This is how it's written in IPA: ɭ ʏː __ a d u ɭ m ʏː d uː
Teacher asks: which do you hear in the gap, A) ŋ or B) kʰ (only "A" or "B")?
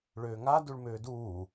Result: A